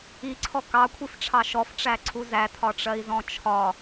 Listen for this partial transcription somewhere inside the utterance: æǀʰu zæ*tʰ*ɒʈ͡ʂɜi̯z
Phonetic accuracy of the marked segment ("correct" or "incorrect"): correct